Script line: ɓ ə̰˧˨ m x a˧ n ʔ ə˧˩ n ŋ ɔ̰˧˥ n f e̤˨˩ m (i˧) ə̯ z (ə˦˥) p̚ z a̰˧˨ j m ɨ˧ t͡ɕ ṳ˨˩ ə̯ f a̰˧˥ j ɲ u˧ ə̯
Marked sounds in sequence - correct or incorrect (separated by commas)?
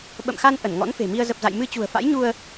correct, incorrect